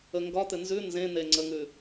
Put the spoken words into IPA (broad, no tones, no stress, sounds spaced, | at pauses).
ə ŋ ɡ ɒ t̪ ɘ n z ʉ n z ẽ n̪ e ŋ͡ǀ ə ŋ ʉ